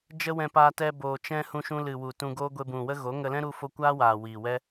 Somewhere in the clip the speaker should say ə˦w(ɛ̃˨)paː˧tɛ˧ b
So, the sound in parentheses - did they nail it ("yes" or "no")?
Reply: no